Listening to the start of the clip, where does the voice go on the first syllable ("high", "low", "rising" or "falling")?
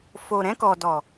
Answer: low